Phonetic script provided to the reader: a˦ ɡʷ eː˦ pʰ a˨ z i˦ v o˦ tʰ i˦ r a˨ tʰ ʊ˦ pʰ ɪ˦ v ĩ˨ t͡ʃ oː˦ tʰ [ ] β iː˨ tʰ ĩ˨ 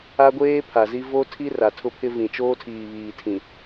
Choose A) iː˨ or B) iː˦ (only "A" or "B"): A